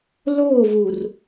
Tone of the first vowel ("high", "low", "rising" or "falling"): falling